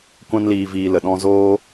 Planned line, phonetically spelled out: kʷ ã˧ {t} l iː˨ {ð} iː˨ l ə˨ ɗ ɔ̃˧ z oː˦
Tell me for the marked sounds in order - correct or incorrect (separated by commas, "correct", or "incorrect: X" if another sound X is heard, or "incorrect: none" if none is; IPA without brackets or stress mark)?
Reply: incorrect: n, incorrect: v